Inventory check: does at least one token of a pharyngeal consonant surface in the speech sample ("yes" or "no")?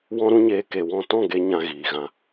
no